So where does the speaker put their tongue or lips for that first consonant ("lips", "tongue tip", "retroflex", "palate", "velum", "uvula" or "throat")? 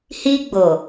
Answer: throat